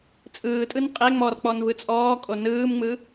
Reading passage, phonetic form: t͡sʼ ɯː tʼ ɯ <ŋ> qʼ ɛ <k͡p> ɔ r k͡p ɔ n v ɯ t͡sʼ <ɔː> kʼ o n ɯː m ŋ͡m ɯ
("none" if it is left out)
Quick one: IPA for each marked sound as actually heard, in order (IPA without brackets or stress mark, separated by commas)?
n, ŋ͡m, ɔː